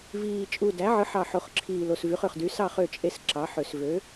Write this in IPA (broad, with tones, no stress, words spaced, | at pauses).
viː˨˩ t͡ʃʼu˨˩dæ˩˥ʕɯ˩˥ħɑ˨˩ ħo˨˩χǁʰiː˨˩ lo˨˩svy˩˥χ ø˨˩χdy˩˥sɑ˥˨ χø˥˨t͡ʃʼe˥˨s ǁɑ˩˥ħø˨˩s vø˩˥